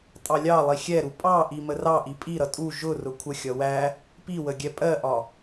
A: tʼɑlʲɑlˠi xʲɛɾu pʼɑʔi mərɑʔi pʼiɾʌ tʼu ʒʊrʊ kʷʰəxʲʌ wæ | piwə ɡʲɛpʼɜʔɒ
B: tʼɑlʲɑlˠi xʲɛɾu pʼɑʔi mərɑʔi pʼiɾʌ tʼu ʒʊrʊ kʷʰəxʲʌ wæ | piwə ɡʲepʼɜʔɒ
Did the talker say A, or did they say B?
A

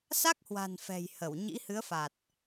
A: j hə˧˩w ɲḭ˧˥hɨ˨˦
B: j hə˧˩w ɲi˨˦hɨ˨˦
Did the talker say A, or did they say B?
A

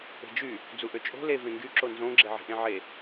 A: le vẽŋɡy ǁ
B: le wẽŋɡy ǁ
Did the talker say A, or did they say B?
A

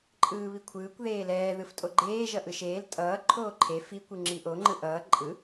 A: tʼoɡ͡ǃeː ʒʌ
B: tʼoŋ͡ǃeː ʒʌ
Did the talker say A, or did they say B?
A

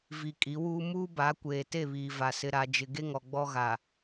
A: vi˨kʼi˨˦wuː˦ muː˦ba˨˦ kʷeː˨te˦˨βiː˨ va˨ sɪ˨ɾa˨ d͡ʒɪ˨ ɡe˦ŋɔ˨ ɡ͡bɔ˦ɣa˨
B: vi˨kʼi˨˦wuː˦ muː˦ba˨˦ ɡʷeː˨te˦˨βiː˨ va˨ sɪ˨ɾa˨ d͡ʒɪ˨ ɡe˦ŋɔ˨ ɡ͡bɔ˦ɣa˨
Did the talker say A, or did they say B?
A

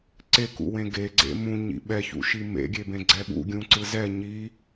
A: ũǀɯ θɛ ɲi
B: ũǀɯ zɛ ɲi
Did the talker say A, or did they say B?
B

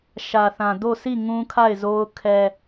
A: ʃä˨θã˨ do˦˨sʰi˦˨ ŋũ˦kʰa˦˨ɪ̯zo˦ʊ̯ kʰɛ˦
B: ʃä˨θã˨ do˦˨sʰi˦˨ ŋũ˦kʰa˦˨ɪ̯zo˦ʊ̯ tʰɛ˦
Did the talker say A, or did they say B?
A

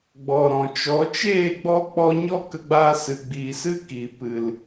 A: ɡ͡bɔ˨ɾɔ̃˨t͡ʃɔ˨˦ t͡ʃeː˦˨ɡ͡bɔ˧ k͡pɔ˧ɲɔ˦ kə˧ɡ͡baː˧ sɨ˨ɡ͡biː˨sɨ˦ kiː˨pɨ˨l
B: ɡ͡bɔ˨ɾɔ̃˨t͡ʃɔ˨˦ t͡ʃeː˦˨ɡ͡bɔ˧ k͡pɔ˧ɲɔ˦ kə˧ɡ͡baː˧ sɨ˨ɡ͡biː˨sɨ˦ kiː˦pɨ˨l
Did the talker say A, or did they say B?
A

